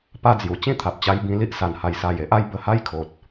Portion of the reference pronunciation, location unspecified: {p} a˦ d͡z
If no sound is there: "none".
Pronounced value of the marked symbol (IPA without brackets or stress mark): p